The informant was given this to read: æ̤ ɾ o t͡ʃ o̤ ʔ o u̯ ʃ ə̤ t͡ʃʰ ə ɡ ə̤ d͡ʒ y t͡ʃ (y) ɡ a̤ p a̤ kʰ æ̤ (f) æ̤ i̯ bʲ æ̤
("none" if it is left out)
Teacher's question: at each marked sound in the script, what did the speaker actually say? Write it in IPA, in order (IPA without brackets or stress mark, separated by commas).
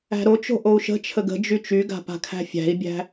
y, fʲ